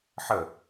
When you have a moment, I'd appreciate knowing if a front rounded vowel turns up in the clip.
no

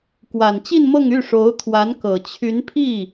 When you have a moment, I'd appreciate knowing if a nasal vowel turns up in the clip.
no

